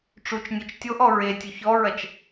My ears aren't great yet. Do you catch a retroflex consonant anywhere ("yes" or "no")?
yes